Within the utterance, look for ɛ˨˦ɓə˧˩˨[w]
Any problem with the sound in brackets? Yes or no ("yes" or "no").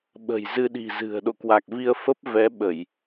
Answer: yes